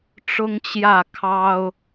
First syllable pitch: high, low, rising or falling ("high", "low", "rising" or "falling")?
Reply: high